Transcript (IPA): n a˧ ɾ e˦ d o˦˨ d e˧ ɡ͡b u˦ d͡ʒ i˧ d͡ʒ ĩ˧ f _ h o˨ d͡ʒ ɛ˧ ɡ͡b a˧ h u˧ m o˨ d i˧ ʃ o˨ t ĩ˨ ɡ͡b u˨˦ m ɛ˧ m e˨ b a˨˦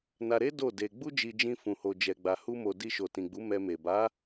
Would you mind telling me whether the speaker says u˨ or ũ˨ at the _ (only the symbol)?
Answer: ũ˨